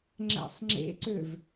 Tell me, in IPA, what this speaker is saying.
ŋ͡ǁ æ̰ sˤ ŋ͡ǁ ḛ ǀ ø v

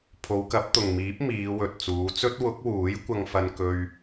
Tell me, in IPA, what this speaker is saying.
pʰ o˨˧ w k ɐ˨˥ p̚ t̪ ʊ˨ ŋ m iː˨˥ p̚ m iː˨˧ w ɵ˨ t̚ t͡s uː˨˧ t͡s ɵ˥ t̚ w ʊ˨˥ k̚ w uː˨˥ j kʷ ɐ˧ ŋ f ɐ˧ n k ɵ˧ ɥ

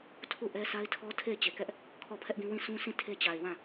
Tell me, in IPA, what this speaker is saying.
tʰ u˦˨ ʔ ɛ˦ sʰ a˦ ɪ̯ tʰ ɔ˦ tʰ e˦˨ ɪ̯ t͡ɕ e˨ k ɛ˦ ʔ | kʰ ɔ˦˨ pʰ ɛ˦ ʔ ɡ ĩ˦ w ĩ˦˨ s ũ˦ s ĩ˦˨ tʰ e˦ t͡ɕ a˨ ɪ̯ w ã˦˨

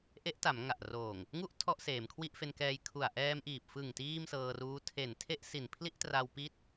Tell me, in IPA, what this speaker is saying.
ʔ e˦˥ ʔ t a˩˦ m ŋ a˨˩ ʔ r oː˨˩ ŋ | ŋ u˥˩ ʔ tʰ ɔ˥˩ ʔ s eː˩˦ m kʰ w i˥˩ ʔ f e˧ n k ɛː˧ j kʰ u˨˩ a̯ ʔ ɛː˧ m ʔ iː˨˩ p̚ f ɯ˨˩ ŋ t iː˥˩ m s ɤː˧ r uː˦˥ tʰ e˨˩ n tʰ e˥˩ ʔ s i˨˩ n pʰ l i˥˩ ʔ t r a˧ w p i˥˩ t̚

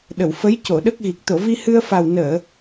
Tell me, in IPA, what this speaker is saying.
ɗ ə˨˩˨ w f ə˧˥ j c o˨˩˨ ɗ ə˦˥ k̚ ɣ i˨˩ k̚ t̪ o˨˩˨ v i˧ h ɨ˧ ə̯ f a˨˩ w n əː˨˩˨

